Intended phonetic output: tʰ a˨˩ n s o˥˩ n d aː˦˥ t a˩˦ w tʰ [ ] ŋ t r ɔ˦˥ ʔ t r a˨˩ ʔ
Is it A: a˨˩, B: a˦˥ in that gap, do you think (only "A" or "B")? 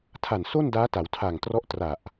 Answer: A